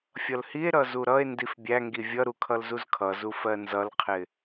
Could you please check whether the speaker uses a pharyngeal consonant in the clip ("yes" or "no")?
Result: no